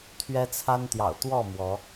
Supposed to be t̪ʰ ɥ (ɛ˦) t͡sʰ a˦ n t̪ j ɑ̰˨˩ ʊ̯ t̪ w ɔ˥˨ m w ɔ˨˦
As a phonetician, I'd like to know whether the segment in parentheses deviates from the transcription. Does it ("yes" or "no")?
no